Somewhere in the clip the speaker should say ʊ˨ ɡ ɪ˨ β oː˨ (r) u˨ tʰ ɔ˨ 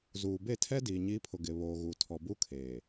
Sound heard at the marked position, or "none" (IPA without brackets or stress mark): ɣ